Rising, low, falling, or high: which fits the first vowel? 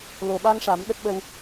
low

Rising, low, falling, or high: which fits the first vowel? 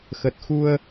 low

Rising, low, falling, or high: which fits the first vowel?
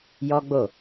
high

